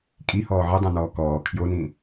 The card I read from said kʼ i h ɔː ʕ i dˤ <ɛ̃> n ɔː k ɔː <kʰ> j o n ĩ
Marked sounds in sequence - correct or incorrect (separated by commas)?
correct, correct